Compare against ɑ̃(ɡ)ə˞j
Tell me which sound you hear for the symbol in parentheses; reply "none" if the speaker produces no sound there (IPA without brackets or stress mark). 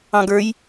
ɡ